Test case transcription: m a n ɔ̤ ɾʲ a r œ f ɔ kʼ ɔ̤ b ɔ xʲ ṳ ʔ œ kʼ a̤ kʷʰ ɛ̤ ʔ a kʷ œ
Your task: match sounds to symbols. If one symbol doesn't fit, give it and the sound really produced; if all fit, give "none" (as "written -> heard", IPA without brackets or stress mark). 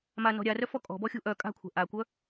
none